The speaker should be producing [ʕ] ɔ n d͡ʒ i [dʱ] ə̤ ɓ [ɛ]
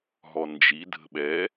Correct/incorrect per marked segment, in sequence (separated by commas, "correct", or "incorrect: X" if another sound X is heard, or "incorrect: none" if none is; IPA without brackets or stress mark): incorrect: ɦ, correct, correct